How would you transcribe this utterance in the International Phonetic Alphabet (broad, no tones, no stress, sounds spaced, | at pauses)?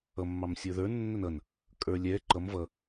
ʌ mː ɑ m sʲ ə˞ ð ə˞ nː ə n ʌ n | kʼ ə˞ lʲ ɛ ǃ ʌ m v ʌ